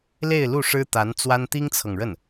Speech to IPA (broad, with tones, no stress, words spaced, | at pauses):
le˥˧ɪ̯lu˥˩ʂɻ̩˥ t̪a˧˥nt͡swa˥n t̪i˥ŋt͡sʰɤ˨ŋɻə˥˩n